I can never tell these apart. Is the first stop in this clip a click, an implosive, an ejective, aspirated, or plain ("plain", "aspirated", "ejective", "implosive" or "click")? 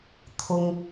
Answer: aspirated